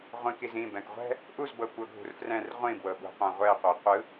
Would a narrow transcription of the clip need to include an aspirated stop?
no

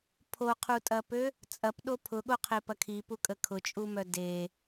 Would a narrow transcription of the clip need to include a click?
no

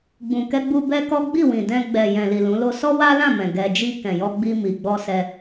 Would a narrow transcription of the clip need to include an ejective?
no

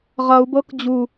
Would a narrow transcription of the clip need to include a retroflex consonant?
no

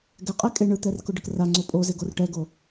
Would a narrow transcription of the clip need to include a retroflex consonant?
yes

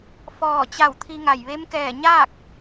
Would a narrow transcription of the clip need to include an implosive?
no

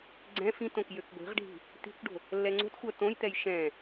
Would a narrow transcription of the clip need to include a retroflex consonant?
yes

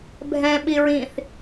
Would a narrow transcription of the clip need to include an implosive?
yes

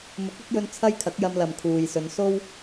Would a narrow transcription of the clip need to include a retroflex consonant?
no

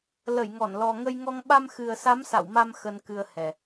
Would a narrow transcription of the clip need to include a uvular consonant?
no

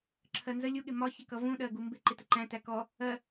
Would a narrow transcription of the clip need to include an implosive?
yes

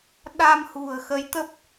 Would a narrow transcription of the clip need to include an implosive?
yes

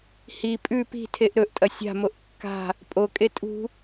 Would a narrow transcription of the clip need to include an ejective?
yes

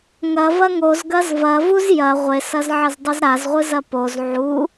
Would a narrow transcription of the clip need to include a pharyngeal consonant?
yes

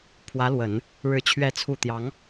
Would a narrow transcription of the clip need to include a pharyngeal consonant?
no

